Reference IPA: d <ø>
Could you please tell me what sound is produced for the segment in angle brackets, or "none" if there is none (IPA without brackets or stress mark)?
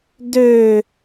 ø